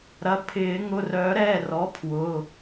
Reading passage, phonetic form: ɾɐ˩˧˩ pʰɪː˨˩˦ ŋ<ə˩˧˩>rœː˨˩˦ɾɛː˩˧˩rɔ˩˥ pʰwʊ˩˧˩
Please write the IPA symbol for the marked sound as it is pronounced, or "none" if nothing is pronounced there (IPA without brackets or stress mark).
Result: ʊ˩˧˩